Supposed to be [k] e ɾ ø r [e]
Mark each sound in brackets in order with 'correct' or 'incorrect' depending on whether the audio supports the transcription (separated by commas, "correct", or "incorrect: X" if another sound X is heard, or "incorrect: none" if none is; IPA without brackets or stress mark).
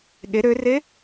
incorrect: ɠ, correct